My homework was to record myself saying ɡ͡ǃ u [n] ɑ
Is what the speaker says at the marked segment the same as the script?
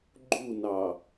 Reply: yes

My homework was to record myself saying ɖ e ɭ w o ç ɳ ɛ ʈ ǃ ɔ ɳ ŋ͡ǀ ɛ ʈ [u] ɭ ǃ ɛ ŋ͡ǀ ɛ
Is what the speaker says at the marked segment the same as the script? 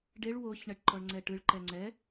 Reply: no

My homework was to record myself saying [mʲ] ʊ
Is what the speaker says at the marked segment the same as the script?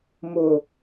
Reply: no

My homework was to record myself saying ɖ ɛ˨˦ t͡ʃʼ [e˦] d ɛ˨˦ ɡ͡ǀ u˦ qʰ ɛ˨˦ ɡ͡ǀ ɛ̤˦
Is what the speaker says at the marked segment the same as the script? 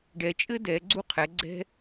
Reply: no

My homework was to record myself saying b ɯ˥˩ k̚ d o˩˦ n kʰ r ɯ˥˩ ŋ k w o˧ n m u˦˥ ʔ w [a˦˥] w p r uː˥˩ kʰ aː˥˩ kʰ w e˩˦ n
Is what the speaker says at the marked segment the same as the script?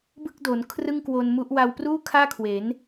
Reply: no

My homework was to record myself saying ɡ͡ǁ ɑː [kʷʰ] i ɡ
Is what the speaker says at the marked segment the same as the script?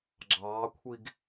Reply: yes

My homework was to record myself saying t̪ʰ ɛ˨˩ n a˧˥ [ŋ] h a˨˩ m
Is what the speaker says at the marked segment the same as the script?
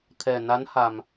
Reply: no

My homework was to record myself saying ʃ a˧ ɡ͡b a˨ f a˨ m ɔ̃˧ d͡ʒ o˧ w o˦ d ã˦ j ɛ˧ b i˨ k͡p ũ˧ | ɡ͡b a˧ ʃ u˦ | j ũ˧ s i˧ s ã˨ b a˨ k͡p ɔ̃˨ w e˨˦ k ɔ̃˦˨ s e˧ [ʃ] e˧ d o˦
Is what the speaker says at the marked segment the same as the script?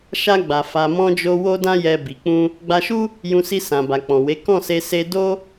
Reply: no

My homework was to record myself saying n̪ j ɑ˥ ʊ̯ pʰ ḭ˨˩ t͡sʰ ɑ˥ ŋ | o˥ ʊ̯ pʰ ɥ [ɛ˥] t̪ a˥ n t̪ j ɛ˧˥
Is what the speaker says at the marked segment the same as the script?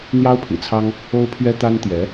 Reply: yes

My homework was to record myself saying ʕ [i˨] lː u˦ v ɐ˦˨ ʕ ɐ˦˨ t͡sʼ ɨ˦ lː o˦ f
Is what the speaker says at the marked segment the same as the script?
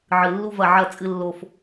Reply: no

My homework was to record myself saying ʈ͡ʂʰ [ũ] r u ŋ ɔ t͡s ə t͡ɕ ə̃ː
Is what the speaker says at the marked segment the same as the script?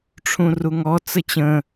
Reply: yes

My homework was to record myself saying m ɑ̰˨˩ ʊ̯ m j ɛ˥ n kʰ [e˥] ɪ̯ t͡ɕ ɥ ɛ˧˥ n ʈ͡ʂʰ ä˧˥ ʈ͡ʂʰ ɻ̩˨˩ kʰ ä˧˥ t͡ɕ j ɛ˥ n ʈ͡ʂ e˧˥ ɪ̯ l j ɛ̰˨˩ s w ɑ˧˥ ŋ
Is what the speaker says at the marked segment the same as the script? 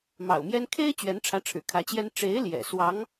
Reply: yes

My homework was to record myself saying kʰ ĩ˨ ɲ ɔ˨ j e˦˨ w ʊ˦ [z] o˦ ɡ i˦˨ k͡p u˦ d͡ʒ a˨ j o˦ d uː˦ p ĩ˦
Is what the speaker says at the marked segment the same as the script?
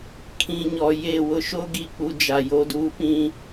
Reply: no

